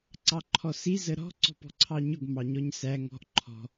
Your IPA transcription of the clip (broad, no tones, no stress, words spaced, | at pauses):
ǀɑǃʰɔsi zəɾɔ̤ ǀɔ̤pɔ̤ǀʰɑɲʊɡ mɑɲɔɲsæ ŋɔ̤ʔ ǃʰɔ̤